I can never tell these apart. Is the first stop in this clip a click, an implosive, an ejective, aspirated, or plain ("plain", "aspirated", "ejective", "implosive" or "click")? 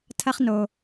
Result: aspirated